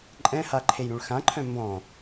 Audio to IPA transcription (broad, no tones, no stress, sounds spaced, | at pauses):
ǃʼ ɛ̃ h a ǃʰ e j ɾ ũ ɭ x ã ǃʰ œ̃ m b ɔ̃